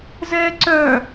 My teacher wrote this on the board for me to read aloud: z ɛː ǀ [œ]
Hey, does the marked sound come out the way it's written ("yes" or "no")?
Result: yes